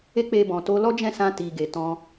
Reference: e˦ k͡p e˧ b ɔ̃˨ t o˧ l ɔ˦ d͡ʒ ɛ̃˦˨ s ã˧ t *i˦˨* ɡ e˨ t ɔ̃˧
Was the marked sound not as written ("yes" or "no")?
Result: yes